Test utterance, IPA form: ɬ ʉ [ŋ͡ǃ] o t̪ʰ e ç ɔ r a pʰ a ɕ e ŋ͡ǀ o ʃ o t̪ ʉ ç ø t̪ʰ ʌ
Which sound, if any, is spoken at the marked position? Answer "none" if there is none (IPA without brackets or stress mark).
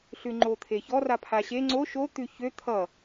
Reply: ŋ͡ǃ